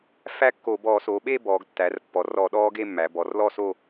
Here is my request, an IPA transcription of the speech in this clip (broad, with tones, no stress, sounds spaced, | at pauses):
f æ˥˧ kː o˧˩˧ b ɔː˧˩˧ s o˩˧ ɓ e˥˧ b ɔː˩˧ ɡ tː æ˩˧ r pː ɔ˩˧ r ɔ˧˩˧ ɗ ɔː˦˥ ɡ e˥˧ mː æ˩˧ b ɔ˩˧ r l ɔ˥˧ s o˥˧